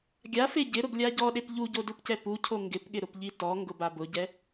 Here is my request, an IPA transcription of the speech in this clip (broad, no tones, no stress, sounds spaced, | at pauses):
ɡʲ a f e ɟ ɪ ɾ ʊ ɡ lʲ a ɟ ɔ ɗ e p ʎ u ɟ o d u p c ɛ p u cʰ o ŋ ɡ ɪ p ɠ ɪ ɾ ʊ p ʎ i t ɔ ŋ ɡ ʊ b a b ʊ ɟ ɛ